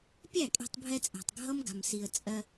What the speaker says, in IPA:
pʲæ˦˨kʼe̤˧tˤbʱɛ˧t͡sʼæ̤˨tˤ ɡʱʌ˦mɡa̤˨msi˨ə̯ t͡sʼɜ˧

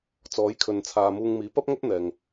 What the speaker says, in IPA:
t͡sɔː˨˥jkʰɵ˨nt͡sʰaː˨muː˧ŋ miː˨˥pɐ˥p̚ŋɵ˥t̚ n̪ɛː˨ŋ

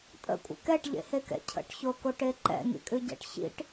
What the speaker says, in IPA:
tʼə̰kʷʼə̰ kɛʈʎḛhekɛ̰ cʰə̰ʈçokoʈe ǃɛ̰ŋḭkʼʉɟɛ̰ʈ çḭʈ

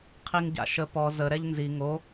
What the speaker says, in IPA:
qʰiŋɟa̰ʃə pɔ zə ɾɛʎnzi ŋo

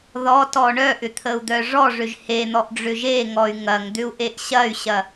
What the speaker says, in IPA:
ðɔtɔ ɳœʔʏt̪ʰəu̯d̪œ ʐɔʐʏʒ hen̪ɔʔɖ͡ʐʏ ʒeŋɔy̯ ŋɐŋd̪ʏu̯ʔeʔ ɕɐy̯ɕɐ

